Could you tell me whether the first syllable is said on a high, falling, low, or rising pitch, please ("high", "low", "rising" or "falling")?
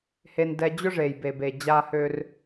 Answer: low